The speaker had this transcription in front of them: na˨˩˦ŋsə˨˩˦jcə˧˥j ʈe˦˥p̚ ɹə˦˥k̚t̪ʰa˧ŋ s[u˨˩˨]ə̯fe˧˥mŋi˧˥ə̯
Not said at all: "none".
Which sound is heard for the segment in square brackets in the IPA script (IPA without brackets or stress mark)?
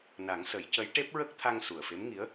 u˨˩